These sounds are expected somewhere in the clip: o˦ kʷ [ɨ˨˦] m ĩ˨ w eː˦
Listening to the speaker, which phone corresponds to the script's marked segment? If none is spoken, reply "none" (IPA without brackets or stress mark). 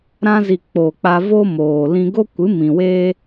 ɨ˨˦